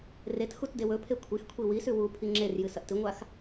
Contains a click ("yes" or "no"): yes